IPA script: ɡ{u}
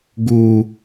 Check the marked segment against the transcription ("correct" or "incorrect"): correct